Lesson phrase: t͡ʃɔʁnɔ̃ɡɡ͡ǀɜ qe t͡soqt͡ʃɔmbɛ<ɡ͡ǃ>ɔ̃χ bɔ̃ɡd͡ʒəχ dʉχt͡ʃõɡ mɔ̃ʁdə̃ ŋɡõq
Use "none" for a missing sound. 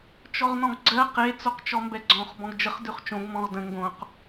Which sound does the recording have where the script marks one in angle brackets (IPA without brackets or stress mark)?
ɡ͡ǀ